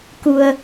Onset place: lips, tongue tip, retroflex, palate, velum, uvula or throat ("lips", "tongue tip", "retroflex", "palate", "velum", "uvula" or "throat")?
velum